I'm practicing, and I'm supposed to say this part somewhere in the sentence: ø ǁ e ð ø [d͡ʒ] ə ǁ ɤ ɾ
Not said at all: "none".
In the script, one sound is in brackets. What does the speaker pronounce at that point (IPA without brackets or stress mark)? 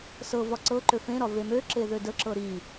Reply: d